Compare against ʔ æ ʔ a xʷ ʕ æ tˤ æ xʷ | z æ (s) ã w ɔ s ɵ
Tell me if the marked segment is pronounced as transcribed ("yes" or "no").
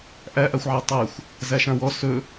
no